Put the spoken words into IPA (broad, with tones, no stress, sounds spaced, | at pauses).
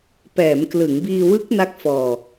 p ɛː˩˦ m k l ɯ˩˦ ŋ b iː˧ w ɯ˦˥ k̚ n a˦˥ k̚ f ɔː˧